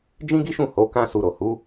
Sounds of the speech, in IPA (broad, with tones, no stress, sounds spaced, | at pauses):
d͡ʒ ĩ˦ ɡ i˦ ʃ ũ˦˨ h o˨˦ k ã˦ s u˧ ɾ o˨ h u˨˦